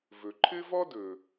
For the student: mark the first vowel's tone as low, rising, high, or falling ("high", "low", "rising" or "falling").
low